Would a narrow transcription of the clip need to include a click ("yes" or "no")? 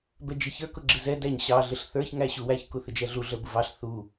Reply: yes